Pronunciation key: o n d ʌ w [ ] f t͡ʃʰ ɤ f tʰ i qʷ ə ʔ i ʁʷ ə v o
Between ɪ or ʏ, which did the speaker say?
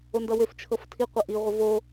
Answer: ʏ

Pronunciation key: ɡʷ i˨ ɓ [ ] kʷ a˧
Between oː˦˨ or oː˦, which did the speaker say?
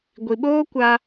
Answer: oː˦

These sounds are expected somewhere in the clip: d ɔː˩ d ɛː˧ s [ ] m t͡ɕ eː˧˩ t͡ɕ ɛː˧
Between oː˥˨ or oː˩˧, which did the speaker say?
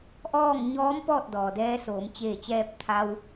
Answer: oː˩˧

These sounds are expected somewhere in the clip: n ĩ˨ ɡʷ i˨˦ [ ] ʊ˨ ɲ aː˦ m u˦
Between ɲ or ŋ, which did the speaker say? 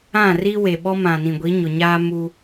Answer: ɲ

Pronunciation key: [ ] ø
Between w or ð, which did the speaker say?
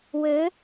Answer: w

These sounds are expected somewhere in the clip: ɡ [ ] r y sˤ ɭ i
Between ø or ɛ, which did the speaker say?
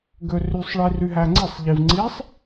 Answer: ø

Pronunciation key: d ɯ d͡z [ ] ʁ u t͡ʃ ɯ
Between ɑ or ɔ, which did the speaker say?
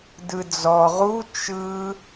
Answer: ɔ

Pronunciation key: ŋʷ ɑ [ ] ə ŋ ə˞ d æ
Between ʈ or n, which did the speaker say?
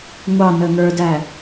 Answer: n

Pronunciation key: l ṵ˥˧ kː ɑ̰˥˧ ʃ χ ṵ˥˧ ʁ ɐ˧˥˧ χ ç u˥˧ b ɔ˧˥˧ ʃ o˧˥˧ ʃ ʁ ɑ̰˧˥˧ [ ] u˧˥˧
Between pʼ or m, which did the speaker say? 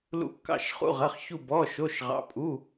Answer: pʼ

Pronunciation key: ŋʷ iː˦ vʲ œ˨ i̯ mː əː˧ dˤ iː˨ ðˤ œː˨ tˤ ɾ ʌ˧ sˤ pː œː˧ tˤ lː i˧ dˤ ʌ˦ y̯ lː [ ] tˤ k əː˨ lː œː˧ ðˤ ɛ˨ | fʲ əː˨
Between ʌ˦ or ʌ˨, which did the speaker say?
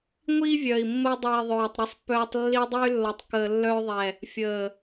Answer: ʌ˨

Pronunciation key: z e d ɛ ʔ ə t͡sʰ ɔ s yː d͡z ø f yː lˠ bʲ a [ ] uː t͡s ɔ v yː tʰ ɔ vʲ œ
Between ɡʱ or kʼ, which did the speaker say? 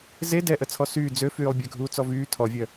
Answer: ɡʱ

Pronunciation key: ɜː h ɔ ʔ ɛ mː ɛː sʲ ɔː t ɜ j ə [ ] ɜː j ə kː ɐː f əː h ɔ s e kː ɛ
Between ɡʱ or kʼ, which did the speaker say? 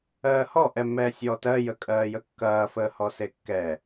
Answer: kʼ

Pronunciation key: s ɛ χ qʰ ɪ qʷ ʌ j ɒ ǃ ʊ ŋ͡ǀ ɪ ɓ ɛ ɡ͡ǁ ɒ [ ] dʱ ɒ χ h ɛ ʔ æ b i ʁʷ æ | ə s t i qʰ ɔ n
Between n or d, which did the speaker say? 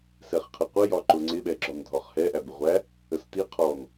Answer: n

